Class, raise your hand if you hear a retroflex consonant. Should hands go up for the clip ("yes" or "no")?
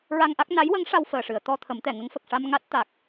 yes